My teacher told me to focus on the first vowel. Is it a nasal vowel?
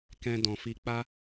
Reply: yes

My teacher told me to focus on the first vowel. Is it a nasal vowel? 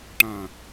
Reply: yes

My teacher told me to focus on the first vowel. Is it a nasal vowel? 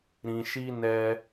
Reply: yes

